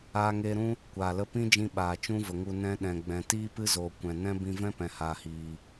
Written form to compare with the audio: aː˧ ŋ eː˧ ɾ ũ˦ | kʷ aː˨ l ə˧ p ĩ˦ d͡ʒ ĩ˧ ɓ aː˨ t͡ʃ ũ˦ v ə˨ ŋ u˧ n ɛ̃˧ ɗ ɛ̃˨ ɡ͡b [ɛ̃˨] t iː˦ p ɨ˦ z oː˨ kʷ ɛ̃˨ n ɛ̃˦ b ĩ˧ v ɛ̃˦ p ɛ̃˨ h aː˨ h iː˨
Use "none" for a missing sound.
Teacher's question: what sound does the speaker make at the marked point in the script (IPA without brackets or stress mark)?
ɛ̃˨